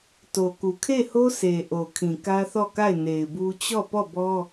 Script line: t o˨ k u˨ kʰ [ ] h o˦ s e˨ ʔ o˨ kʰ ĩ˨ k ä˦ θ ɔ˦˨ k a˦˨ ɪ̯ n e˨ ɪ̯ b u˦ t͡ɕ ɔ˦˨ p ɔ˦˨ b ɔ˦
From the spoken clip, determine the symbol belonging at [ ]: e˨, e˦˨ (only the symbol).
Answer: e˦˨